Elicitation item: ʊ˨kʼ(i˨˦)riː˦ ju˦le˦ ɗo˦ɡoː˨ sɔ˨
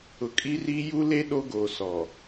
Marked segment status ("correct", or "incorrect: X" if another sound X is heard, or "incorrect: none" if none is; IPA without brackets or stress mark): incorrect: i˦